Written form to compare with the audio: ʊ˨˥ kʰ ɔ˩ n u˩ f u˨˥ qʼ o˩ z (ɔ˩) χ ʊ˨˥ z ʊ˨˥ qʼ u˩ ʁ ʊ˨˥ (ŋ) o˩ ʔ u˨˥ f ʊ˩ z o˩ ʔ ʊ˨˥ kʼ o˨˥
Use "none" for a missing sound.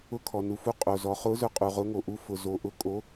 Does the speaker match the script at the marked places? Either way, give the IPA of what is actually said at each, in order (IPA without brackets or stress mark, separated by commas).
ɔ˩, ŋ